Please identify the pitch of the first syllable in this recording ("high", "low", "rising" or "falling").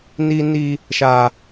high